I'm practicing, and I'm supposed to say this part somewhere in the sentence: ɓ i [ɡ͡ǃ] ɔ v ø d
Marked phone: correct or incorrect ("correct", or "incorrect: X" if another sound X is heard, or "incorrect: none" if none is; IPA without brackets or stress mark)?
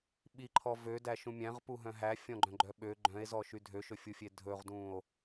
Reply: incorrect: ǃʰ